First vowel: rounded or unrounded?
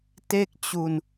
unrounded